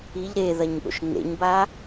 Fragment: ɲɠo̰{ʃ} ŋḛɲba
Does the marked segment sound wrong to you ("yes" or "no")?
no